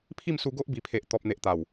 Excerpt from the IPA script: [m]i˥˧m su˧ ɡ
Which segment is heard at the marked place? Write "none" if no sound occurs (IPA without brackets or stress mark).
pʰ